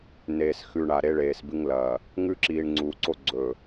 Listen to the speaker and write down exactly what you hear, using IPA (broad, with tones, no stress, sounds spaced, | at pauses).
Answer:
n eː˨ s x ʉ˨ ɳ a˨ ɾ e˦ ɭ eː˨ s b ɨ˦ ŋ l ɐ˨ | ŋ ʉ˦ ǁ iː˨ ɳ ŋ͡ǀ uː˨ ǀ o˦ ɡ͡ǀ ɵ˨